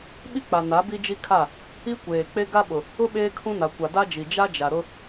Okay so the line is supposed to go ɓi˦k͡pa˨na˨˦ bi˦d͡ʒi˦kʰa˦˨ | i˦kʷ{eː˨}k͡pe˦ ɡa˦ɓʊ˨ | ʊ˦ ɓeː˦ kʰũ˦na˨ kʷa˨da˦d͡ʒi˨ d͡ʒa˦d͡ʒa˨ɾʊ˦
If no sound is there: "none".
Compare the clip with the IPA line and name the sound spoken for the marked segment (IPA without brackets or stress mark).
eː˨